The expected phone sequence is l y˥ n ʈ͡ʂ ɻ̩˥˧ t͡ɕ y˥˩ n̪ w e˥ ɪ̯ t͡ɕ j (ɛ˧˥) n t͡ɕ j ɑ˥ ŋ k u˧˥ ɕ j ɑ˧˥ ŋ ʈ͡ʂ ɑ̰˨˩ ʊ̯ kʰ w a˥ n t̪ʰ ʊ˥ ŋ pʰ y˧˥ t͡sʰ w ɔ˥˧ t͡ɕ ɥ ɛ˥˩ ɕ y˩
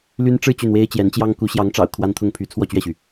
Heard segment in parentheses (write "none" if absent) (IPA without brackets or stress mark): ɛ˧˥